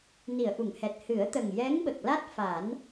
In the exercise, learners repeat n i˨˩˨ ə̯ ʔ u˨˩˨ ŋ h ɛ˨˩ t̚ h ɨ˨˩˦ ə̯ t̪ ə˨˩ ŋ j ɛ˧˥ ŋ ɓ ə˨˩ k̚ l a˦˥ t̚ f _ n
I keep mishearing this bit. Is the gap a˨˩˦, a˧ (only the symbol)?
a˨˩˦